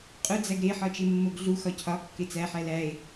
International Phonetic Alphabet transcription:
qʼ u d͡z æ ɡ ɾ e ħ ɒ t͡ʃ e mː o ɡ ɮ u x ɒ cʰ ɒ kː e t͡s æ ħ æ l æ e̯

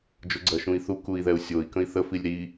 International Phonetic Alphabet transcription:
d͡ʒ o ɡ͡ǀ ɜ ʃ ũ i̯ θ u k u i̯ ð ɛ u̯ sʲ o i̯ k ə̃ i̯ θ ə f i lʲ ɾ i

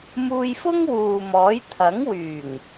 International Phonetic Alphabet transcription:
m uː˧ j f ʊ˥ ŋ w uː˨ m ɔː˨˥ j t̪ʰ ɐ˨˥ ŋ w yː˨˩ ŋ

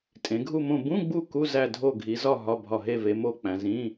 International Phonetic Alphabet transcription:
tʼ ẽ˩˧ ɡʱ u˦˨ m õ˦˨ b ũ˧˥˧ ɡ͡b u˦˨ k u˧˥˧ z æ˦˨ dʱ o˦˨ ɡʱ i˩˧ z ɒ˦˨ ɦ ɒ˧˥˧ bʱ ɒ˦˨ ɦ e˦˨ v e˩˧ m o˦˨ k͡p æ̃˩˧ z ĩ˧˥˧

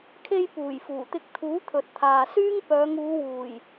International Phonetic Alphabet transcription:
kʰ e˧ j p uː˨˩ j f uː˨˩ t̪ ɪ˧ k̚ t̪ʰ uː˨˥ t̪ʰ ɵ˨ t̚ t̪ʰ aː˨ s yː˥ ŋ p œː˨˧ ŋ uː˨˧ w uː˨˩ j

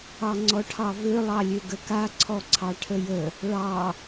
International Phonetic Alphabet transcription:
ɑ ŋ͡ǀ ɔ ʈʰ ɑ v ø lˠ ɑ lʲ ø ɡ ə k a ǀʰ ɔ ǀʰ ɑ ʈʰ ə j ə | ɭ ɑ

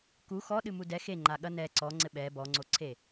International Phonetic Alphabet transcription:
k u x ɔ ɗ ɨ m u d ɛ x e ŋ͡ǃ a ɠ ɐ n ɛ ǀ ɔ ŋ͡ǀ ɘ ɓ ɛ b ɔ ŋ͡ǀ o ǀʰ e

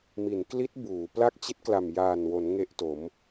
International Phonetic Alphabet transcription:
m i˩˦ n k l i˦˥ t̚ b uː˩˦ p l a˥˩ k̚ t͡ɕ i˦˥ t̚ k l a˨˩ m j aː˨˩ n w o˩˦ n ŋ e˥˩ ʔ t o˩˦ m

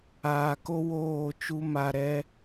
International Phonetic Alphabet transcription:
aː˨ k o˦ w oː˦˨ t͡ʃ u˦ m a˧ ɾ ɛ˦

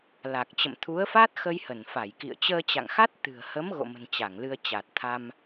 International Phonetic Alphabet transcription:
l a˨˩ k̚ t͡ɕ ə̰˧˨ m t̪ʰ u˨˦ ə̯ f a˦˥ t̚ x ə˧ j h ə˧˩ n f a˧˩ j k ḭ˧˨ ə̯ t͡ɕ əː˧ t͡ɕ a̰˧˨ ŋ x a˦˥ t̚ t̪ ɨ̤˨˩ ə̯ h ə˨˦ m ɣ o̰˧˨ m ə̤˨˩ n t͡ɕ a˧˩ ŋ l ɨ˧ ə̯ t͡ɕ a˨˩ t̚ t̪ʰ a˧ m

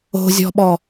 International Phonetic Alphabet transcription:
o̤ zʲ ɔ̤ ɓ ɔ

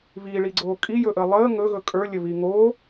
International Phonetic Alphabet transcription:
β iː ɭ i ɡ͡ǀ oː kʼ i j ɵ ʔ əː lˠ əː ŋ ɵ ɣ ɵ kʼ ə˞ lʲ ə β i ŋ oː

